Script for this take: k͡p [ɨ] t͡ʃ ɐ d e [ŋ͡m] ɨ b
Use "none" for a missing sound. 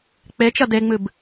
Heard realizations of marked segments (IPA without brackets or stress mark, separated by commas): e, ŋ͡m